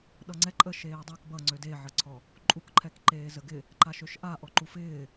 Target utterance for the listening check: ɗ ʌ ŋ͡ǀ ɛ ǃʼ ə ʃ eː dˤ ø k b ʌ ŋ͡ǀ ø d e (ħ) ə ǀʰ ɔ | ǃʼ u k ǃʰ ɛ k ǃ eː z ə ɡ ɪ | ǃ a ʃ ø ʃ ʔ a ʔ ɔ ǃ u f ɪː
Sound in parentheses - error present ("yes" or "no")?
yes